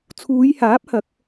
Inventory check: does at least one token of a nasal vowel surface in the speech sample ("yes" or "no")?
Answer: no